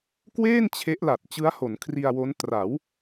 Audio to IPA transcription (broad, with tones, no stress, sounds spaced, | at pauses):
k w eː˥˩ n t͡ɕʰ e˦˥ ʔ l a˨˩ t̚ t͡ɕ ɯ˦˥ a̯ h o˩˦ n kʰ r i˧ a̯ w o˦˥ n t r a˩˦ w